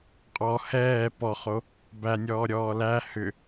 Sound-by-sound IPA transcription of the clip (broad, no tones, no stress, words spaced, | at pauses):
qʼɔ hɛː pɔχo | bænʲɔːɾʲɔː læ hʏ